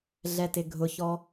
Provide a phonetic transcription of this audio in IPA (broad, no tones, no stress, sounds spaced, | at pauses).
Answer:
ɮ ɛ t ɪ ɡʱ ʊ ç ɔ